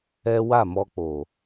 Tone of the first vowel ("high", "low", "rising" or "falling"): high